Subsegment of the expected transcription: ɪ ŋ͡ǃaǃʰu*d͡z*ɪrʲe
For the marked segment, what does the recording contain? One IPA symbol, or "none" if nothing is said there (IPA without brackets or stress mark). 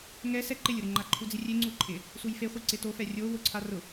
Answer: d͡z